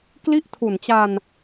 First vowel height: high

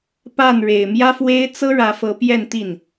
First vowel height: low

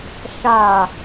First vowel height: low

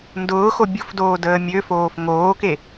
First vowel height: high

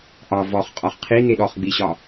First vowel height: low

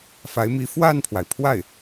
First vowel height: low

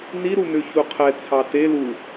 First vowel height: high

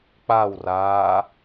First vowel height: low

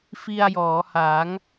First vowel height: high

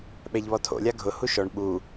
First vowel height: mid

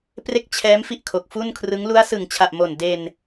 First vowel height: mid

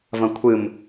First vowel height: low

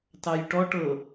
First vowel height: low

